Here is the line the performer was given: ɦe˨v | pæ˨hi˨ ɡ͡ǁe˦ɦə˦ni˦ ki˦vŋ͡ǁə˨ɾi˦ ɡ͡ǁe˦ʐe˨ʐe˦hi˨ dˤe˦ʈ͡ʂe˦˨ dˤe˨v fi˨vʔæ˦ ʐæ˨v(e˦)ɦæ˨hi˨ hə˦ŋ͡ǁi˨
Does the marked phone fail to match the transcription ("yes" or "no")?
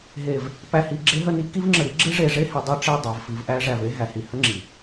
no